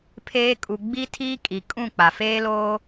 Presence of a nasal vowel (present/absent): present